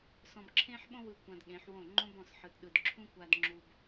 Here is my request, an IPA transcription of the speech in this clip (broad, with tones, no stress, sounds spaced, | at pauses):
s ɔ̃˧ b ǁʰ ẽ˦ ħ ɓ õ˦ w ɯ˧ kʷ ã˧ d ɠ ẽ˨˦ ħ w õ˦˨ ŋ͡ǃ õ˦ b ɔ̃˦˨ s ħ ɯ˨ t ɗ ɯ˨ d ǁʰ ũ˦ kʷ a˧ d ŋ͡ǁ u˧ b